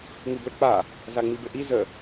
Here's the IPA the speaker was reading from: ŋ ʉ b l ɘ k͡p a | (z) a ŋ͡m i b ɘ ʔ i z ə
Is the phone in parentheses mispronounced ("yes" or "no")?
no